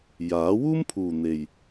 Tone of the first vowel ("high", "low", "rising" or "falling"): rising